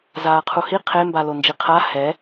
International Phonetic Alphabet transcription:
zaːqʰuhi qʰe mbalond͡ʒiqʰa hɛ

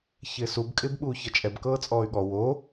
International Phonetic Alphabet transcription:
çɪːsub kʼɪːbɓuːçʌt͡ʃʼɛb kɤːt͡sʼɔːy̯ɠɔ wo

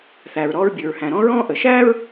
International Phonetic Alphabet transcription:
θæː˩ɹɾɔː˧ɹbʲʉ˩ɹhæ̃˩ ɾɔ̃˥ɹɔ̃ː˥ʔə˩ ʃæː˥ɹ

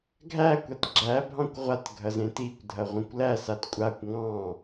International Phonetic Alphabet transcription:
ɡʱæ kʷatɡ͡ǁæ bʱɑ̃kʷʁʷat ɡʱɐzẽtikʷ dʱɐʁʷẽkʷlæ satkʷʼakʷ ŋɑ̃

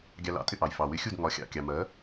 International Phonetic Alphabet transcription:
ɡʲɑ˧ lɑ̰˩˥tʼɪ˧ʔɑ˩j fɑ˩wɪ˧xʲu˥˩d ŋɒ˩˥xʲɑ̰˩kʲɑ˩ mɜ˩˥

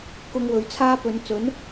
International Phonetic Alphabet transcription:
kʊ˧ŋwɵ˨˧ɥ t͡sʰaː˧ pɵ˨˧n t͡sɵ˨˥n

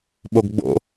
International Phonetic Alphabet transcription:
ɓoɡɡ͡bo̰

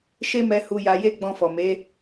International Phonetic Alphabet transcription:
ʃe˦mɛ˧ hu˧ja˧je˦ ɡ͡bɔ̃˧fɔ˨me˨˦

